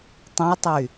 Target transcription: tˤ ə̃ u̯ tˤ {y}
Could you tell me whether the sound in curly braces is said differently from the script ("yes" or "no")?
no